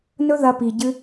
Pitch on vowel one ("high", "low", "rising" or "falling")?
high